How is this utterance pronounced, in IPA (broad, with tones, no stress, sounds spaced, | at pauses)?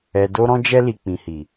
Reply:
ɛ˨ d o˧ ɾ ɔ̃˧ d͡ʒ ɛ˧ l i˨ k͡p ĩ˨ h i˨